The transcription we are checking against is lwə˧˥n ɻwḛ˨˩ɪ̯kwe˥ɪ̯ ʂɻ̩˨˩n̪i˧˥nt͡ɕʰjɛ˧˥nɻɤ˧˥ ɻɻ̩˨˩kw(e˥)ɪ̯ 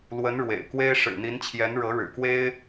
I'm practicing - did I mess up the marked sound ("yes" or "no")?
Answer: no